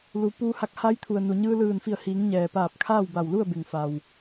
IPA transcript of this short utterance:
l u˩˧ p uː˧ h a˧ k̚ h a˧˥ j t̪ʰ u˩ ə̯ n u˩ ɲ ɯː˧ l ɯː˧˩ n f i˧˩ ə̯ h iː˩˧ ŋ ɲ ɛː˩ p aː˧˩ p̚ kʰ aː˥˨ w b a˧˩ w l u˥˨ ə̯ b e˩ ŋ f a˩ w

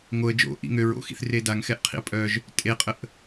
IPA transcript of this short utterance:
ŋ o ə̯ d͡ʒ o̰ ʔ ḭ ŋ ø ɹ o̰ x ḭ θ r e d a ŋ x ɛ ʔ qʰ ḭ ə̯ pʼ œ ʒ | tʼ e qʼ ə ʔ

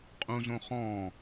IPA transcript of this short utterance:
qʼ ũ z õ χ ɔ̃

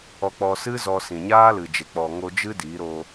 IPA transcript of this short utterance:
ɔ˧ k͡p ɔ˧ s ɨ˦ z ɔ˧ s ĩ˨ ɲ aː˦ l ɨ˨ d͡ʒ e˨ k͡p ɔ˨ ŋ o˧ d͡ʒ ɨ˦ d i˨˦ ɾ o˧

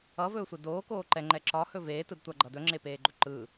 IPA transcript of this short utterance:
ʌ v ɵː sʷ e d oː k oː ǃ ɛ ŋ͡ǃ ɛ ǁ ɒ h ɵ v eː t ɯ d tʷ a ɡ͡ǃ ʌ d ɵ ŋ͡ǁ e p eː ɡ͡ǃ ɵ ǃ ɯ

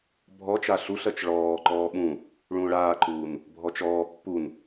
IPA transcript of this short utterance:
bʱ ɔ t͡ʃ a ɬ u ɬ ɜ t͡ʃ ɭ ɔː ǃ ɔː ɓ ũ | ɭ ũː ɭ aː ǃ uː n | bʱ ɔ t͡ʃ ɔː pː u n

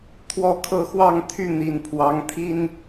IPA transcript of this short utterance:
t̪ʰ w ɔ˦ kʰ ɤ˥˨ x w ɑ˥˨ ŋ t̪ʰ y˥˨ n̪ i˨˩ n pʰ w ɑ˨˦ ŋ t̪ʰ i˦ n

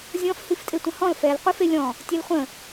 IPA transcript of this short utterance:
zʲ ɔ̃ f h i f tʼ e tʷ ə̃ h ɔ̃ l f ɛ l qʷ ɨ f e lʲ ɔ̃ | tʲ ɛ l χʷ ə̃

